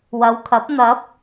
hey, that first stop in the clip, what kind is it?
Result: aspirated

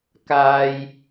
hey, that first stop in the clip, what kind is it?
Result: plain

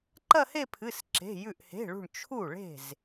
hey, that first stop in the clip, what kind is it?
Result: click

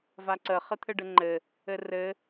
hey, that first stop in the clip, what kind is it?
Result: click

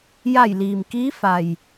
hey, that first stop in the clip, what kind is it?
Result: plain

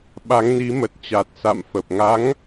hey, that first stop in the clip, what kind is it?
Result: implosive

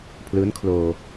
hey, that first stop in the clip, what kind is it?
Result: aspirated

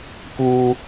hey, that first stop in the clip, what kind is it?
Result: plain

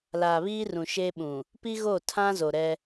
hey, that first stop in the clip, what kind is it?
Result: implosive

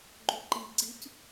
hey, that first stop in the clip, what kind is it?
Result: click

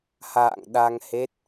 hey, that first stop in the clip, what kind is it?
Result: implosive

